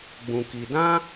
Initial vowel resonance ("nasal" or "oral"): nasal